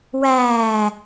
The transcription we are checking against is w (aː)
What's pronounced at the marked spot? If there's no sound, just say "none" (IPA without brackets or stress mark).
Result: æː